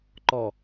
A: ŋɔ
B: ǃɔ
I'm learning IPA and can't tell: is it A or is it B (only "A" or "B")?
B